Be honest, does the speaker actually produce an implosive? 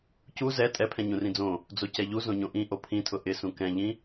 no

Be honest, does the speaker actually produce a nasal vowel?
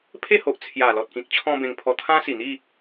yes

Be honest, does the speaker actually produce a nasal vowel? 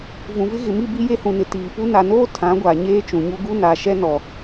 yes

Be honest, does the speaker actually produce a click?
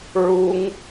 no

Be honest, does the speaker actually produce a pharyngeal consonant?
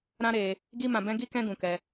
no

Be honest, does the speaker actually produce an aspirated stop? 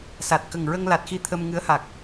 yes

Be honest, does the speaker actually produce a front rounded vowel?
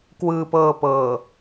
no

